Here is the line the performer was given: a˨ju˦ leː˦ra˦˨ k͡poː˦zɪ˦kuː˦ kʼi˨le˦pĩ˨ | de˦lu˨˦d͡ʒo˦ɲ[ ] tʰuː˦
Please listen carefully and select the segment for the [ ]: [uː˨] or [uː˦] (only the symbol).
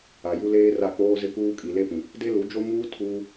uː˦